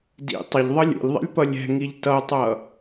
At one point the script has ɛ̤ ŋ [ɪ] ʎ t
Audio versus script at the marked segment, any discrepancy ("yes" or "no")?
yes